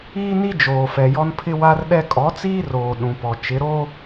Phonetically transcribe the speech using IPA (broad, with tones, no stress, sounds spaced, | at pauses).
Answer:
iː˦ n i˦ d͡ʒ oː˨ f ɛ˨ j ɔ˦ n pʰ ɪ˦ w a˦ r ɗ ɛ˦ kʼ ɔ˨˦ t͡s iː˦ r oː˨ ɗ ũ˨ p ɔ˨ t͡ʃ ɪ˨˦ ɾ oː˦